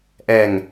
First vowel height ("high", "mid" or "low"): mid